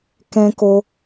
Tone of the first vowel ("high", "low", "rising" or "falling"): high